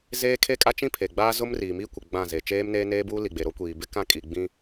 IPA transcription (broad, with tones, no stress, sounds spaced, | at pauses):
z eː˦ kʰ e˦ kʼ a˦ t͡ʃ ĩ˦ pʰ e˨ ɡ͡b aː˦ z ʊ˦ m r iː˨ m i˦ kʷ ɪ˨ ɡ͡b ã˦˨ z e˨ t͡ʃ eː˦ m n eː˦ n eː˦ b uː˦ l i˨ ɡ͡b e˨ ɾ o˦ kʷ iː˨ b ɪ˦ k ã˦ kʼ i˨ ɡ͡b ĩ˦